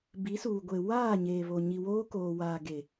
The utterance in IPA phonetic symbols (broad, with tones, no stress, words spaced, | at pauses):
bi˨˦suː˨ɡʷe˨ waː˦˨ɲeː˨βo˨ ɲi˨woː˦koː˨ waː˨ɡe˨